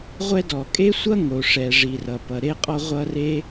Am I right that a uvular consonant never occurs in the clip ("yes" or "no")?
no